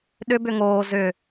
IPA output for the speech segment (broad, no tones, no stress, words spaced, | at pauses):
ɗʏbʏ ŋoː zʏ